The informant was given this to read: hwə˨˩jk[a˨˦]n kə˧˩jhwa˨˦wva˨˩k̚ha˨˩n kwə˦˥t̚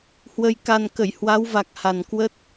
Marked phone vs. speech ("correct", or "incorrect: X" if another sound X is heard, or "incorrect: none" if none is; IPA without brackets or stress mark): incorrect: a˨˩